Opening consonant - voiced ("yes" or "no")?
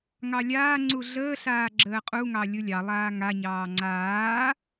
yes